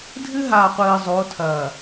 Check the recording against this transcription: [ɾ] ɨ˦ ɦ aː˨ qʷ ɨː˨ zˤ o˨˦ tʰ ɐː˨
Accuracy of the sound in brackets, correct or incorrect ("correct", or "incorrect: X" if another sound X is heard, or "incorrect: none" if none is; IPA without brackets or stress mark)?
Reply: incorrect: dʱ